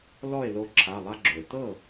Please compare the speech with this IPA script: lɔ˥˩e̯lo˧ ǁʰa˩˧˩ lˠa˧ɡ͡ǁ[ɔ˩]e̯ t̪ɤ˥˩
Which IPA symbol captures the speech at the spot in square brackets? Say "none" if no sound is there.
o˩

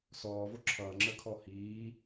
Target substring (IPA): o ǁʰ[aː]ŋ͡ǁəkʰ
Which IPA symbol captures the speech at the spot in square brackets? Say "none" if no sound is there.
ʌː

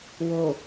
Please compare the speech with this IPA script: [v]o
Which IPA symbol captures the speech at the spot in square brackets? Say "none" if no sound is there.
w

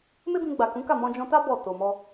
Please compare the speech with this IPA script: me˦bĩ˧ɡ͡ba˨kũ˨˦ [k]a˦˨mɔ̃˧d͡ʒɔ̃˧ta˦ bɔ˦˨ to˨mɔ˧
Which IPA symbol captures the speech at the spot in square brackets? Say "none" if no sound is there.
k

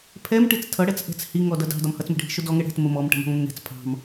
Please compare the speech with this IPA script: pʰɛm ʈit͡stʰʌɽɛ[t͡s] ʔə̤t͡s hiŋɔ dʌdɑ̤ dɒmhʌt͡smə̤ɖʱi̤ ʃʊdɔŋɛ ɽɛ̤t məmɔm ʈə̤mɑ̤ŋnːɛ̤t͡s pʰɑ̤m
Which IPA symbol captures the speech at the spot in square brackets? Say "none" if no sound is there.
t͡s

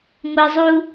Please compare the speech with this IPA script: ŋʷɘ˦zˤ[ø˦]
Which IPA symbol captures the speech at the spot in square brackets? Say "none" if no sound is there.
u˦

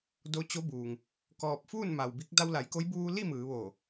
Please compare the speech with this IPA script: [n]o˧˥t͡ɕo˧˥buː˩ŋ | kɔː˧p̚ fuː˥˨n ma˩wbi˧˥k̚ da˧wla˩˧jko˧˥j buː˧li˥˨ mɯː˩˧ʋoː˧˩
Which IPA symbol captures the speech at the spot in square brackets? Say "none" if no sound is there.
d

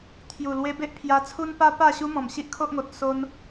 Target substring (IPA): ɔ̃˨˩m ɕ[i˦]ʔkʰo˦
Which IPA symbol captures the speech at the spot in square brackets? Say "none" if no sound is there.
i˦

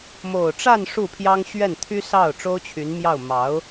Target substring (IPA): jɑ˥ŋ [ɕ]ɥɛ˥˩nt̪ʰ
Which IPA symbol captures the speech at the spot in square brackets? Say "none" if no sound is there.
ɕ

